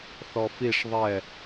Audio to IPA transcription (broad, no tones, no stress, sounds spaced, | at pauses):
θ ɔ f i ʂ ðˤ ɛ